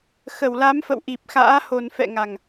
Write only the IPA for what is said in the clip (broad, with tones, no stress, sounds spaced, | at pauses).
x ə˧˩ w l a˨˦ m f ə̰˧˨ w ʔ i˨˩ p̚ x a̰ː˧˥ h o˨˩ n f ɛ̰˧˨ ŋ a˨˩ ŋ